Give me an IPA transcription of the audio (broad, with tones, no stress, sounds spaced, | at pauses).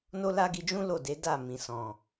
n o˦ l a˦ ɡ i˧ d͡ʒ ũ˦ l o˦˨ d e˨˦ d a˦˨ m ĩ˨ s ɔ̃˨